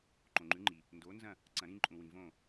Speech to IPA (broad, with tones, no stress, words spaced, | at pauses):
ǃõ˨ŋ͡ǃʉ˨˥ŋ͡ǃi˨ | ndo˨˥nzɐ̃˥˨ | ǀɐ̃˨˩˦ ɾĩ˦ǃʼũ˨wĩ˨ võ˥˨